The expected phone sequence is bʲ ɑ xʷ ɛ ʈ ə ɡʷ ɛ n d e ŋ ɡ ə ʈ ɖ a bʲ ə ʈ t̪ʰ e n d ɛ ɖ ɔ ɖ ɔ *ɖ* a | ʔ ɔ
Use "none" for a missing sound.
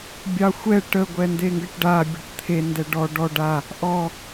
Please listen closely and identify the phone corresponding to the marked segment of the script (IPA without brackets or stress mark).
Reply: ɖ